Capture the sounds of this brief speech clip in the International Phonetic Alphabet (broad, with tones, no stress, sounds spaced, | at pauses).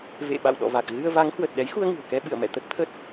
v ḛ˧˨ ɓ a̰˧˨ w ɗ ɔ̰˧˨ v a˨˩ k̚ ɣ ɨ˧ ə̯ v a˨˦ ŋ h w ə˨˩ t̚ ɗ ɛ˨˦ j x u˧ ə̯ ŋ ɨ̤˨˩ ə̯ k ɛ˧ ɓ ɨ̰˧˨ ə̯ m ɛ̰˧˨ t̪ ə˦˥ t̚ t̪ʰ ə˦˥ t̚